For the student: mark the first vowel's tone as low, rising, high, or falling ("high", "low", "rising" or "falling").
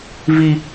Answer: high